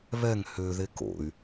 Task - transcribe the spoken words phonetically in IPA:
β ɛ ŋ h ø ð e k o̰ y̯

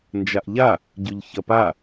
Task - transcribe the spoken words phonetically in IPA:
n d͡ʒ a ʔ ʎ a | ɟ y ʎ ç ɐ p a

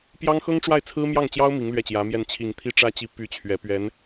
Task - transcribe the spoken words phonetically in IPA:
p j ɑ˥ ŋ x ɤ˥ ŋ ʈ͡ʂ w a˥˩ ɪ̯ t͡sʰ ɹ̩˥ m j ɑ˥˩ ŋ t͡ɕ j ɑ˥ ʊ̯ m i˧˥ ŋ l ɥ ɛ˥˩ t͡ɕ j ä˧˥ m j ɛ˥˩ n t͡ɕʰ i˨˩ ŋ t̪ʰ i˥ ʈ͡ʂ ä˥ t͡ɕ i˧˥ p y˥˩ t͡ɕʰ ɥ ɛ˧˥ p ɥ ɛ˧˥ n

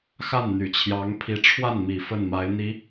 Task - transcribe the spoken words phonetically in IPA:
x a˥˩ n n̪ y˨˩ t͡ɕʰ j ɑ˧˥ ŋ pʰ i˧˥ ʈ͡ʂʰ w a˥˩ n m i˨˩ f ə˥˩ n m a˧˥ ɪ̯ n̪ i˧˥

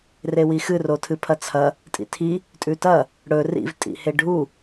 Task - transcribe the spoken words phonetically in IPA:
r e w i x ɨ r o tʰ ɨ pʰ ɐ t͡sʰ ɐ | tʼ ḭ tʰ i | tʼ ʉ t ɐ | ɽ ɵ r ḭ v tʼ ḭ h e ɖʱ u

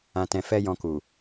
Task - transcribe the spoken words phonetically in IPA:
ã˨ t ɛ̃˨ f ɛ˧ j ɔ̃˧ k u˨

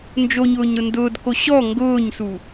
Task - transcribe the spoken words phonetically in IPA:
n d͡ʒ o ɲ ʊː ɲ ɾ ʊ n d ʊː d k o ɕ ɔ ŋ ɡ ʊː ɲ s u

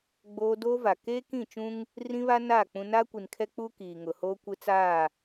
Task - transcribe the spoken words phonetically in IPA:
ɡ͡b oː˦ d oː˦ v a˨ k eː˦ k ĩ˦˨ t͡ʃ ũ˦ ŋ | r ĩ˦ β a˦ n aː˦˨ k͡p ũ˦ n aː˦ kʷ i˨ n kʰ ɛ˦ k͡p uː˦ k iː˨ ŋ ʊ˨ h oː˦ kʷ ɪ˦ t͡s aː˦˨

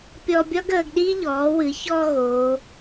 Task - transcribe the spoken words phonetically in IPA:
pʲ ɔ˧ bʲ ɒ˥ ɡ əː˩˧ ɡ ɗ iː˥ ʎ ɔː˩˧ w ɨ˩˧ ç ɔː˧ ɣ oː˩˧

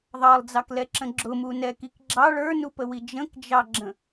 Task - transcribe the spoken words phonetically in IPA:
ðˤ ɑ lˠ d͡z ɑ k l ɛ ǁ ə̃ ɡ͡ǁ ʊ m u n ɛ k i k ɡ͡ǁ ɑ ɭ ə˞ n u p ə w i d͡ʒ ə̃ k d͡ʒ ɑ ɡ͡ǁ ə̃

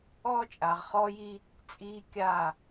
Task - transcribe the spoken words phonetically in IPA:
ɔː˦ t͡ʃʼ a˨ ʁ χ ɔː˦ j i˦ | t͡sʼ iː˦ kʲ a˦˨

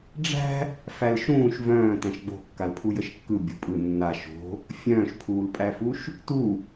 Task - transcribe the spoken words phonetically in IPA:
ɖ͡ʐ æ̤ | f æ l ʃ ũː ʃ v œ̃ː t æ̃ ʃ ɡ͡b o̤ kː a l pʰ u j ə ʃ kː ɯ bʲ o̤ pʼ ɯ nː a ʃ o̤ | fʲ œ̃ː ʃ pʰ uː l pʼ æ f u ʃ | t u

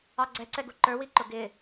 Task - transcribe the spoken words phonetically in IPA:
ɑ ɡ͡ǀ ɛ ǀ ɛ ɡ u ǃ ə˞ w i ǃ ʊ ɡ ɪ

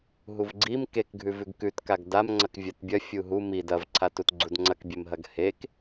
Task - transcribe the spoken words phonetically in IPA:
ɦ u v ɡ͡ǀ i m k e k ɡʱ ʉ v ʉ ɡ k ʉ t k a ɡ d a m ŋ͡ǀ ɐ k vʲ a t bʲ ɐ fʲ u ɦ u m i d ɐ v ǀʰ a t u t ɡ͡ǀ u d ŋ͡ǀ ɐ k bʲ e m ɦ ɐ ɡ h e k

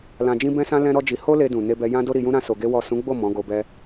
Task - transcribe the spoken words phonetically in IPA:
l ã˧ d͡ʒ ĩ˦ b ɛ̃˦ s ã˦ l ɛ̃˦ ɾ ɔ˦ d͡ʒ i˧ h o˦ l e˧ d ũ˨ n e˧ b ɛ˧ j ã˦ d o˦ ɾ i˧ j ũ˦ ɾ ã˦ s o˧ ɡ e˦ w ɔ˦˨ s ũ˨˦ ɡ͡b o˦˨ m ɔ̃˨˦ ɡ o˧ b ɛ˧

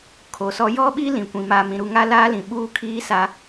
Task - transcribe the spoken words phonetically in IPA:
kʰ o˨ s ɔ˦ j ɔ˦ ɓ i˦ l ĩ˨ kʷ ĩ˨ m aː˨ m ĩ˨ ɾ u˨ ŋ a˦ l aː˦ l ĩ˨ ɓ uː˦ kʰ iː˦ s a˦

